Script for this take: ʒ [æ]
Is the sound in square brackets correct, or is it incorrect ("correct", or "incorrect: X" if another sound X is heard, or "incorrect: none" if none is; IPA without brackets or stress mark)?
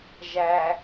correct